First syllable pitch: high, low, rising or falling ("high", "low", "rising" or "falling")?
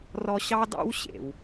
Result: high